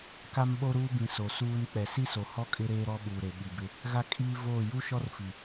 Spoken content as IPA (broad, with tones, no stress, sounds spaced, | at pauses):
k a˦ m ɓ o˦ ɾ uː˦ b ĩ˨ s o˨ s uː˦ n k͡p ɛ˨ s i˦ s o˨ h ɔ˦ kʼ ɪ˦ ɾ eː˦ ɾ ɔ˦ ɓ uː˨ ɾ e˨ ɓ i˨ b ɪ˦ | ɣ a˦ kʼ iː˦ v oː˦˨ j u˦ ʃ ɔ˦ r f i˨